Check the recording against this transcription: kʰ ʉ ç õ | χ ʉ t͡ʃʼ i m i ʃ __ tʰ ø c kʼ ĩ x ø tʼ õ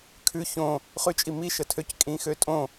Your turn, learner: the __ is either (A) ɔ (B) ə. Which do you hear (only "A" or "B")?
B